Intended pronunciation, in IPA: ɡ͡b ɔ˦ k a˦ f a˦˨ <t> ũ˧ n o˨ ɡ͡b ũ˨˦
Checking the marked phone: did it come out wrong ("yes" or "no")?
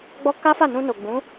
yes